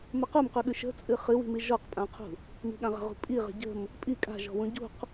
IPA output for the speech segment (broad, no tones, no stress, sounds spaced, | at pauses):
m ə q u m q ʉ ɠ ʉ ʃ ə̤ t͡sʼ ɨ χ ɨ w i̤ m i ʒ ɔ q pʼ ã qʰ ṳ | m i̤ ɠ ã ʁ ə̤ ʁ ṳ pʼ i ʁ ə̤ ɟ ə̤ m | pʼ i kʼ a̤ ʒ ɔ̤ w ũ ɟ ṳ q